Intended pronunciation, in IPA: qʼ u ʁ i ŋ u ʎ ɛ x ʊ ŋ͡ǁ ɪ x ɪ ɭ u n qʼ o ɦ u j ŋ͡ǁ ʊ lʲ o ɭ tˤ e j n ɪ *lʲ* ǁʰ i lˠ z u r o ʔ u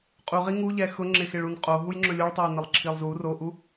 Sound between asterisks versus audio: incorrect: lˠ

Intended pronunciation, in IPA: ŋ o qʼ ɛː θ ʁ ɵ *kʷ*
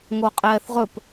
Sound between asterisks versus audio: incorrect: p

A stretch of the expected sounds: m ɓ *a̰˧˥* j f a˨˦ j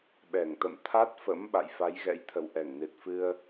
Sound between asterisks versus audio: incorrect: a̰˧˨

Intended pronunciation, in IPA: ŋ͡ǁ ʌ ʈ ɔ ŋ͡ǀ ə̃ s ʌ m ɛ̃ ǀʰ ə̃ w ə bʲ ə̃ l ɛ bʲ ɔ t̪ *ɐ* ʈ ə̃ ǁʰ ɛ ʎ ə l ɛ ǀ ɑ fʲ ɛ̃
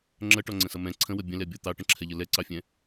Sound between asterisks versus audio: incorrect: ɑ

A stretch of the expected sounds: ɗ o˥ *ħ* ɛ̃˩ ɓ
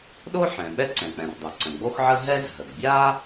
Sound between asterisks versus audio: correct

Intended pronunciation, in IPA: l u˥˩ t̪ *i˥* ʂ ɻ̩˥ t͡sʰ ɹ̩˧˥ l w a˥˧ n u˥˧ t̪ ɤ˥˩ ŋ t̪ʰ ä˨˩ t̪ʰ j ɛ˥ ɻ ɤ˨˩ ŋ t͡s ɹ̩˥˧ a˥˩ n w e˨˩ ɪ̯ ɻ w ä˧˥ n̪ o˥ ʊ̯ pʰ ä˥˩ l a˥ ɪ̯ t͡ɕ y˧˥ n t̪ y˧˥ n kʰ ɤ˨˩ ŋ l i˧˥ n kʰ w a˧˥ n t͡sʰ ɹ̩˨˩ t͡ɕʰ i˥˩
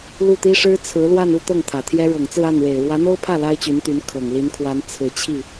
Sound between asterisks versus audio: correct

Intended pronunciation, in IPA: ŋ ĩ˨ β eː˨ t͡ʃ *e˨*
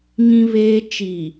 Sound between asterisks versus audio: incorrect: i˨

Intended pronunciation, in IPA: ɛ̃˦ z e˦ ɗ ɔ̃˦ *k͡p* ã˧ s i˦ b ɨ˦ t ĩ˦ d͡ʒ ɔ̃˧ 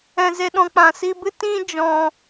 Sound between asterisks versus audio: correct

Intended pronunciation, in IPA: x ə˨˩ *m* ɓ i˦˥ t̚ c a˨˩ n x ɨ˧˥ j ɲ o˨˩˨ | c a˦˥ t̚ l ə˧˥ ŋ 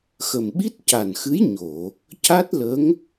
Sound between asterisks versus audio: correct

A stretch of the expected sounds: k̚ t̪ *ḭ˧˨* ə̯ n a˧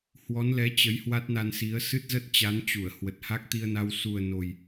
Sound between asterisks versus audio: incorrect: i˧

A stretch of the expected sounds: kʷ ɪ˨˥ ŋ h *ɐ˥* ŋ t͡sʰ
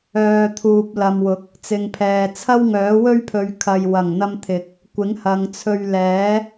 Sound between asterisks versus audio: incorrect: ɐ˨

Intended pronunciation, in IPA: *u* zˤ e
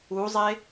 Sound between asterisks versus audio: correct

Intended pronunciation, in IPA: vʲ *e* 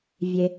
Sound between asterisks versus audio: correct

